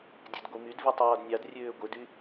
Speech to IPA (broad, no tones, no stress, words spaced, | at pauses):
dʲødɡʷimydvi tˤɑːdnʲɑdrʲøː ɡʷedy